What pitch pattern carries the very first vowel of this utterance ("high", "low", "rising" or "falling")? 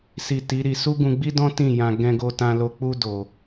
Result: low